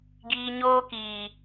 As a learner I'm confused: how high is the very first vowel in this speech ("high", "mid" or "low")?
high